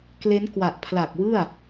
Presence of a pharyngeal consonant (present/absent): absent